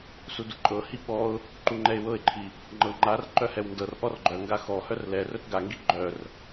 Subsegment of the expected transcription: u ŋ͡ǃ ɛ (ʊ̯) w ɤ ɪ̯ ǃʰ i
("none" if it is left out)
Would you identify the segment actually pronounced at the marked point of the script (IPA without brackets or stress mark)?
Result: ɪ̯